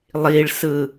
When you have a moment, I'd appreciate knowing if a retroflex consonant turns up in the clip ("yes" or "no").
yes